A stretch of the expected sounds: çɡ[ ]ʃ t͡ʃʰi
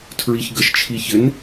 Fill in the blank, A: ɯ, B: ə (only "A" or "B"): B